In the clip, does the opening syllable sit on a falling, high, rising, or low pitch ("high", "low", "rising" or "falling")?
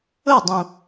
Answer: falling